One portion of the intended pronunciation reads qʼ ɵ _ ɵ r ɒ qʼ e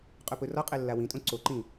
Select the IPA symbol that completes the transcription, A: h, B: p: B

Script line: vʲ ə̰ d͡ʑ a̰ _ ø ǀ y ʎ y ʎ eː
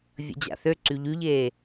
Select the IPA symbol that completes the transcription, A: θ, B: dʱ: A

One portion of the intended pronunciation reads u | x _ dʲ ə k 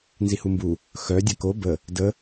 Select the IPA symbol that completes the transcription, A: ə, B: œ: B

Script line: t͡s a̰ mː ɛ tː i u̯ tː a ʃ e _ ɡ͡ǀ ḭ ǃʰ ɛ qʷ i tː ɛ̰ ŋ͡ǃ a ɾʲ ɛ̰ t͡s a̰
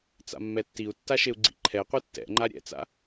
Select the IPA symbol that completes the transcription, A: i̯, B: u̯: B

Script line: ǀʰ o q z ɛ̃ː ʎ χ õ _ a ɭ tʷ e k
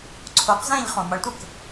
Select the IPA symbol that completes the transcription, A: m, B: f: A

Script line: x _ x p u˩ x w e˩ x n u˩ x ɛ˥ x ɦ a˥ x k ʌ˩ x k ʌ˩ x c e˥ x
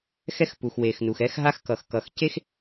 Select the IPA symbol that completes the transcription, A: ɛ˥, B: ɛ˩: A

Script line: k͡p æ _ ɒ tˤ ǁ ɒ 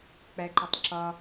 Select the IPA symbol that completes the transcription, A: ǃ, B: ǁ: A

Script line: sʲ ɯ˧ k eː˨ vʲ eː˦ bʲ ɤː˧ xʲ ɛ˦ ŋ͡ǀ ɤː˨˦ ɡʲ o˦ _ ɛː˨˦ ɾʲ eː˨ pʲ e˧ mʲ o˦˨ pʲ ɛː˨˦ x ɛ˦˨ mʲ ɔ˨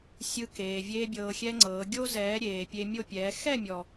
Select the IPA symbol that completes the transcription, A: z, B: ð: A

